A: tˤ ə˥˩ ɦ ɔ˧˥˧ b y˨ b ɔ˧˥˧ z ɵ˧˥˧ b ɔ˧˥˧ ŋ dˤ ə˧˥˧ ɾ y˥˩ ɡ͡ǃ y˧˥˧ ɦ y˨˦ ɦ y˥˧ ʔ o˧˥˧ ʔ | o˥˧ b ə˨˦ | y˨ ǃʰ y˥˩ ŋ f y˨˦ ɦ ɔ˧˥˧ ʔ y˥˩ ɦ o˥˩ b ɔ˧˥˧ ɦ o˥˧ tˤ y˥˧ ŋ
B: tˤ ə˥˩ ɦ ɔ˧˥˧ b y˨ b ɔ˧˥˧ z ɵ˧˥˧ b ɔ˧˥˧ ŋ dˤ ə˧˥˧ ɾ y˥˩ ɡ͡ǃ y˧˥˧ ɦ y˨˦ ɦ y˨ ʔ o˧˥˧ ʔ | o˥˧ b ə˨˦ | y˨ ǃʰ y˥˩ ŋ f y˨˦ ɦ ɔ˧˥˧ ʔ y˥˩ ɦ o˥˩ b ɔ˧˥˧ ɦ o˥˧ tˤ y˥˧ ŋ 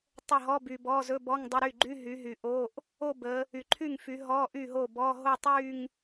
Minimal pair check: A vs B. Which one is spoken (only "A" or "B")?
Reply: B